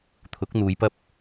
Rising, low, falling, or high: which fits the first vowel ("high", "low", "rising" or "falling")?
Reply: rising